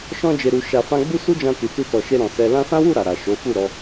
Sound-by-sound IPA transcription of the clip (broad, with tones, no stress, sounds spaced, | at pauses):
ʃ ɔ̃˧ d͡ʒ e˨ ɾ u˨ ʃ a˨ f ã˧ ɡ͡b u˦ s u˦ d͡ʒ ã˧ t i˨ t u˧ t ɔ˨ ʃ e˧ ɾ ɔ̃˨ s ɛ˧ l ã˧ s ã˦ w u˦˨ ɾ a˨ ɾ a˨ ʃ o˨˦ f u˦˨ ɾ ɔ˨˦